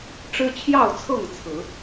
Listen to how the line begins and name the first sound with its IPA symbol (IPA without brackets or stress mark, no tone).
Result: ʈ͡ʂ